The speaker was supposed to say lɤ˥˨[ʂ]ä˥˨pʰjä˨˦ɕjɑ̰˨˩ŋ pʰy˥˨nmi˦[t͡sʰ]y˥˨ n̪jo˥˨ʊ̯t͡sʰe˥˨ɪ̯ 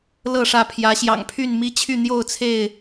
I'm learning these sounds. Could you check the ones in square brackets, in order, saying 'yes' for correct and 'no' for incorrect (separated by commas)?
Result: yes, no